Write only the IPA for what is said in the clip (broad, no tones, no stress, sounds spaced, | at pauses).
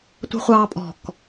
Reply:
tʷ ə̤ χʷ ɑː pʼ ɔ̤ k